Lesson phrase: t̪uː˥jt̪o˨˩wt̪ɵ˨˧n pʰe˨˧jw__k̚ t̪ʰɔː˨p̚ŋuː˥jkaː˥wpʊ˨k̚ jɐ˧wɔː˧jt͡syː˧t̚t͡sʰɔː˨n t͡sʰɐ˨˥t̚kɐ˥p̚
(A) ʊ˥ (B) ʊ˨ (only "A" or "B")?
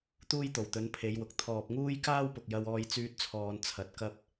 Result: B